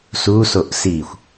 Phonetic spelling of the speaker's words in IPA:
s u s o ʔ s i xʷ

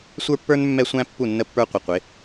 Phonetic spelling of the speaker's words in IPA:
sʷ ə˞˦ pː ə˞˦ n mː ɛ˦ sʷ æ̃˦ pː u˦˨ nː ə˦ pː ə˞˦ qʷ ɪ˨ qʷ ɪ˨˦

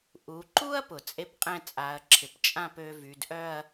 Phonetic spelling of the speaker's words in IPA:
ʔ u˩˧ ǃ u˥ ɐ̯ p ʊ˩˧ t͡sʼ e˥ p qʼ ɛ̃˥˧ t͡sʼ a˩˧ ɐ̯ ǁʰ ɪ˩˧ p t͡ʃʼ ã˥˧ p ø˧ v y˩˧ d ʔ œ˥˧ ɐ̯

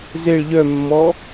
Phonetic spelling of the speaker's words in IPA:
z e ɭ ʎ œ mː ɔ

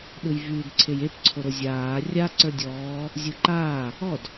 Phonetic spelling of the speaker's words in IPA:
ɗ ɯ j v yː d ǀʰ e j e p ǀʰ o ɾ o zʲ aː rʲ a ǀ ə˞ dʲ ɔː | zʲ ɯ ǃ aː | ɔ d

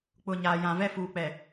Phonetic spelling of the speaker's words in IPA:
k͡p ʊ˨ ɲ aː˨ j ã˨ v ɛ˦ f uː˨ k͡p ɛ˨

